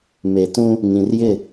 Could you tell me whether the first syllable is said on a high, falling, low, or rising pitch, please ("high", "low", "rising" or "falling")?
low